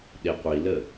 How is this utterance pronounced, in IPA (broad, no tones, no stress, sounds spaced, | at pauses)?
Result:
ɗ e qʷ i l ə